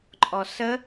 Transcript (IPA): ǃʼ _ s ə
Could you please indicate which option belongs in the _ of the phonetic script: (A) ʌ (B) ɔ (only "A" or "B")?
B